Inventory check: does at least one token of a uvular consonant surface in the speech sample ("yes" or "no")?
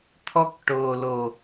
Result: no